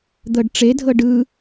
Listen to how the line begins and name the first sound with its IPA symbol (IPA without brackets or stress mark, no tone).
d̪